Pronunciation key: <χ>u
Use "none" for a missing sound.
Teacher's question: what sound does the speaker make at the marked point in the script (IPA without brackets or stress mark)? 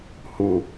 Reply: h